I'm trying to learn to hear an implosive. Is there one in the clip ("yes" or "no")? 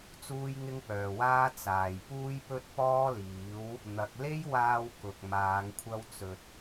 no